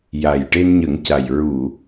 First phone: j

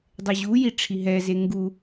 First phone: dˤ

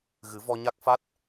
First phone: ɣ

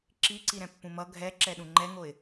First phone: ǁ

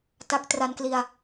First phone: t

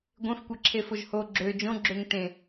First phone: ɡʷ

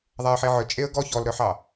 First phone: ðˤ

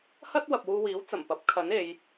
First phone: h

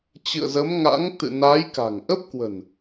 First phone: t͡ɕ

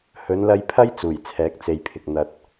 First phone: h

